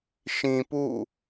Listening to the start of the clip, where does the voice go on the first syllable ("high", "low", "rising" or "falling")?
low